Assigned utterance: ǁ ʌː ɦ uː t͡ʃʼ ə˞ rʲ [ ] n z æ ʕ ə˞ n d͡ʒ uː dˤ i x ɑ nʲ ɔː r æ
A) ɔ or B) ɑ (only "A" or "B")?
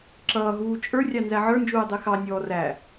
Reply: B